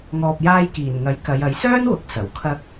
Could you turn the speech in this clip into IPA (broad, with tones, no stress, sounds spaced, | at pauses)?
ŋ ɔː˨ p̚ j aː˧ j k iː˨˩ n ŋ ɐ˨˥ j k ɐ˨˧ j ɐ˨˥ j s œː˥ n w ʊ˨˥ k̚ s ɐ˨˩ w kʰ ɐ˧ k̚